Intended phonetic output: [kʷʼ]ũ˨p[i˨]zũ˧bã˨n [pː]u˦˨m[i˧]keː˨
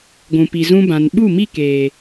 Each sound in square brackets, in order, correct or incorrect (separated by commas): incorrect, correct, incorrect, incorrect